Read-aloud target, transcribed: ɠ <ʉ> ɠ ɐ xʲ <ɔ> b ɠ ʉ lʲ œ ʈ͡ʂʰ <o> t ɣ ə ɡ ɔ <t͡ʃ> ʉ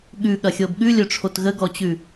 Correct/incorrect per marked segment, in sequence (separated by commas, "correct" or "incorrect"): correct, incorrect, correct, incorrect